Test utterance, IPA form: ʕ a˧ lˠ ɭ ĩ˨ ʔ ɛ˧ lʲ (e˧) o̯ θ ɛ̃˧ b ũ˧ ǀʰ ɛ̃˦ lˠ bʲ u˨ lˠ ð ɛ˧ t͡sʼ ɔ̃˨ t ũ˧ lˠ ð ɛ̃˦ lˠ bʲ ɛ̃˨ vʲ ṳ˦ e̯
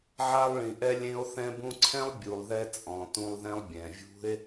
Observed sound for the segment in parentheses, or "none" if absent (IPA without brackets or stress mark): ẽ˧